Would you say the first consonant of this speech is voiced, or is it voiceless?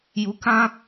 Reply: voiced